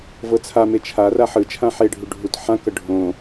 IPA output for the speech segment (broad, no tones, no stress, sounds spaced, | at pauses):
v ɤ t͡sʰ a m e t͡ʃʰ a r a ħ ɯ t͡ʃʰ ã ħ e ɖʱ u ɖʱ u t ħ ã k ɤ ɖʱ õ